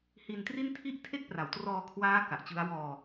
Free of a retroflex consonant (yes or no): yes